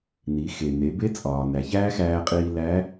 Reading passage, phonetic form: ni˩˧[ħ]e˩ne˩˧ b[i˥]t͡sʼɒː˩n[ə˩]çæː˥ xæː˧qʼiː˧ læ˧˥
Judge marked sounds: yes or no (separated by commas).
no, no, no